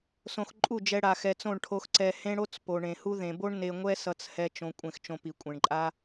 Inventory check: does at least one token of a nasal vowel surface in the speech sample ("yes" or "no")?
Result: yes